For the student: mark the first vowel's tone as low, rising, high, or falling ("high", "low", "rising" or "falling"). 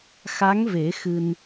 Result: rising